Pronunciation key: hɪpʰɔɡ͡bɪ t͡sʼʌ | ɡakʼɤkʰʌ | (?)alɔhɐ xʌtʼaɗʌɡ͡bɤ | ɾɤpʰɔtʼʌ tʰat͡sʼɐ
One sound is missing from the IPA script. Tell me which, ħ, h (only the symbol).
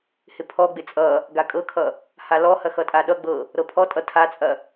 h